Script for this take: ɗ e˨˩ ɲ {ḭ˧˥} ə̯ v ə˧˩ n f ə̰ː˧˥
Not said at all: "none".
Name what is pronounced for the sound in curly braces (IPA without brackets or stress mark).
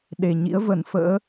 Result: ḭ˧˥